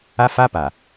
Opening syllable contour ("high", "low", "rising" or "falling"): high